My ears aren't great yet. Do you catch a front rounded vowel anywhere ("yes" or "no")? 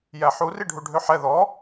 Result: yes